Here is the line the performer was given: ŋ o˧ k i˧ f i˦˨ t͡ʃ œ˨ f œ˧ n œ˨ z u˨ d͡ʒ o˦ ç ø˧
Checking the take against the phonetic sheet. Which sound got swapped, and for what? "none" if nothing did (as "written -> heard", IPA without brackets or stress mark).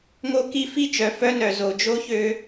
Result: u˨ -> o˨